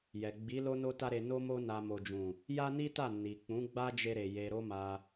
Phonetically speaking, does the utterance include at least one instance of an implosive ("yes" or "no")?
no